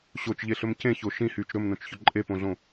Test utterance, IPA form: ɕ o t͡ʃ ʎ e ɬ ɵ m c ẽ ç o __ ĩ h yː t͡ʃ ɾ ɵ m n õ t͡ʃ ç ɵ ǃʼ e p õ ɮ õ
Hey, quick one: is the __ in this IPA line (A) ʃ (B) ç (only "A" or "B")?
A